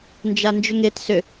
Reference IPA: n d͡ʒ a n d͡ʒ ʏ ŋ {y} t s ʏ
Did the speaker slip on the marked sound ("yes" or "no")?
yes